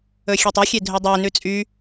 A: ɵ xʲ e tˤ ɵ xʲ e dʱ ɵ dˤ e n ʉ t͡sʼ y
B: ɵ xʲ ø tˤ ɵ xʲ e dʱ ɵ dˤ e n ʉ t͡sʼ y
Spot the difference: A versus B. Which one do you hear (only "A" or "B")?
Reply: A